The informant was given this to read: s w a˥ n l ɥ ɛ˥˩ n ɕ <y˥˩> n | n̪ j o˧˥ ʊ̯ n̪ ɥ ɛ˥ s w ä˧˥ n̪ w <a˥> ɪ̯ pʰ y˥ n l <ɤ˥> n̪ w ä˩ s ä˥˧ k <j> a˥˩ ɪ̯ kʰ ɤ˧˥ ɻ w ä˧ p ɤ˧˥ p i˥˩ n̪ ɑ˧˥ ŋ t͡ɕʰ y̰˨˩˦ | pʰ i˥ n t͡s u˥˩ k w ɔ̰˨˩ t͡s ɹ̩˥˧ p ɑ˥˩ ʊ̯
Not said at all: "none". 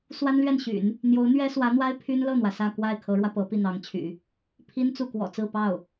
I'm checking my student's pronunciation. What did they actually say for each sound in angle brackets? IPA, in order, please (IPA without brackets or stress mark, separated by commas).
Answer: y̰˨˩˦, a˥, ɤ˥˩, w